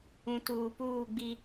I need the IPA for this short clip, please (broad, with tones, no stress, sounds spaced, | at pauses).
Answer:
ũ˨ t uː˨ p uː˦˨ ɡ͡b i˦